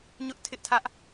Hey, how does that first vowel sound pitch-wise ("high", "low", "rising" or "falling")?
high